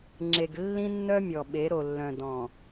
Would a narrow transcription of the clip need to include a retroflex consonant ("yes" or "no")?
no